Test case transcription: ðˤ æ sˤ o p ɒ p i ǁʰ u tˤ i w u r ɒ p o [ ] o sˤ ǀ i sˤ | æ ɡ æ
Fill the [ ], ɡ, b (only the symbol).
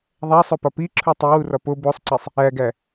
b